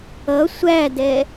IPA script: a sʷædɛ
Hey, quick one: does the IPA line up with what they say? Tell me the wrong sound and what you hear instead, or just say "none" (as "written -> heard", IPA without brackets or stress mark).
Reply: a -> ʌ